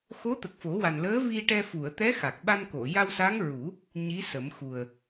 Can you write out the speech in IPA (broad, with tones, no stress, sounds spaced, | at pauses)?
x o˧˥ t̪ ə˨˩ k̚ f o˨˩˦ w a˨˩ n l əː˧˥ v i˧ ʈ ɛ˧ f u˨˩˨ ə̯ t̪ ɛ˧˥ x a˨˩ k̚ ɓ a˧ n k o˨˩˨ j a˧ w s a˧˥ ŋ ɹ u˨˩˦ | ɲ i˧˥ s ə˨˩˦ m x u˨˩ ə̯